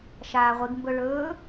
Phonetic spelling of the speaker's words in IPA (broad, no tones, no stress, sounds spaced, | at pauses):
ʃ aː ʁʷ i ɡ m b ɵ ɭ ɵː